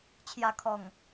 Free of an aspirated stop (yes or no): no